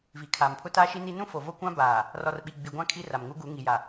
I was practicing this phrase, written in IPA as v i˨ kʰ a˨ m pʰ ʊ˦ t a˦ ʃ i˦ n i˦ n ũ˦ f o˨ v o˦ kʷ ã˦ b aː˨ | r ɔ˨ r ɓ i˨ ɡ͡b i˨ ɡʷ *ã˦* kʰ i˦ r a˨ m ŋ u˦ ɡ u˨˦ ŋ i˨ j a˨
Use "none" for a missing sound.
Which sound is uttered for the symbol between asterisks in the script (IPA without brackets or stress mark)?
ã˦